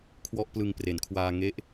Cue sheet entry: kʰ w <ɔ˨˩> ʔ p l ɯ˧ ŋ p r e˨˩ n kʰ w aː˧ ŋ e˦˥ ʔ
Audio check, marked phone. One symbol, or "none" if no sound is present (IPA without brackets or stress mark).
ɔ˥˩